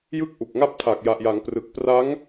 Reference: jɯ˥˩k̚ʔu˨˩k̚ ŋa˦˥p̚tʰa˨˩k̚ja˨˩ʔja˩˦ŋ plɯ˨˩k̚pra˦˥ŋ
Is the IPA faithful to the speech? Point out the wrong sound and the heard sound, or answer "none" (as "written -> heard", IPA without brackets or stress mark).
l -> r